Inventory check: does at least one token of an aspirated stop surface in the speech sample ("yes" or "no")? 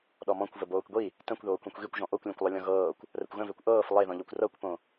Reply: no